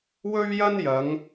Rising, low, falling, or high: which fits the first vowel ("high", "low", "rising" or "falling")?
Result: high